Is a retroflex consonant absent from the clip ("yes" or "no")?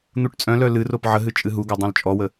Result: no